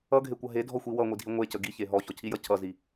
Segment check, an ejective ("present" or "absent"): absent